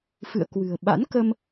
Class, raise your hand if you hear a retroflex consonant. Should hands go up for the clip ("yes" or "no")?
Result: no